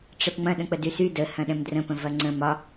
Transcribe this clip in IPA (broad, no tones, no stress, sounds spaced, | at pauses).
ʈ͡ʂ ɛ p ŋ͡m ɐ̃ ɗ ə̃ k͡p ə d y s y d ə h ɐ̃ ɗ ɛ̃ m d r ə̃ p ə̃ v ɐ ŋ͡ǀ ə̃ m ɒ